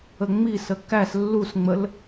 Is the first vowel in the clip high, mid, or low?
mid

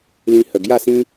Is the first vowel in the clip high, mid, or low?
high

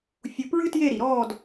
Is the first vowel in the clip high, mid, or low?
high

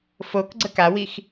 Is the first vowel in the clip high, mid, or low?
mid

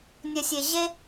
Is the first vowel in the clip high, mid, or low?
low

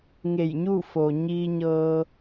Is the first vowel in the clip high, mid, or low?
mid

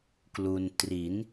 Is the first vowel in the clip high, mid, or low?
high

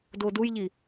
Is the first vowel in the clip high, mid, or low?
mid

